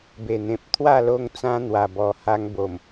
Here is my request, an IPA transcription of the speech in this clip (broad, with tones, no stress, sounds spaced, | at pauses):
b e˨˩ n̪ ẽ˨ p̚ t̪ʰ w a˥˧ l o˦ ŋ t͡s ã˦ n̪ w a˨˩ b ɔ˨˩ h a˧ ŋ b o˨˩ m